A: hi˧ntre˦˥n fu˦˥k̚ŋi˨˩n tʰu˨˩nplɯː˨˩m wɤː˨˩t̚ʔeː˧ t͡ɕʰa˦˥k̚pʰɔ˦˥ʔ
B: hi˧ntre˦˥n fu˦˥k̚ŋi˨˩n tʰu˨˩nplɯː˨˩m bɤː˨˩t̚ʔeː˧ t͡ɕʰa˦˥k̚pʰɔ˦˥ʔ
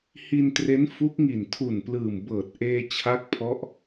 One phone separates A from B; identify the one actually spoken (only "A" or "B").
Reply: B